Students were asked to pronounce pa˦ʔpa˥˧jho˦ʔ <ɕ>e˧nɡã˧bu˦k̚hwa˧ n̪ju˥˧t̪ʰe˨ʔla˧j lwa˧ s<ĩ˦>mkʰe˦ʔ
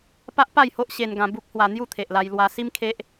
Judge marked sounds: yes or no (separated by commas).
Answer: yes, no